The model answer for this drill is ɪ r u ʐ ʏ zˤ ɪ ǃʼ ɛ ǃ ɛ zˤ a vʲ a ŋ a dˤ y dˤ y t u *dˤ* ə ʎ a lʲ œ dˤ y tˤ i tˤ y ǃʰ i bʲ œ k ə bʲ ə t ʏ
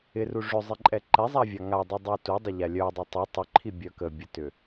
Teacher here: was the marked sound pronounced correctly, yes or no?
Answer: yes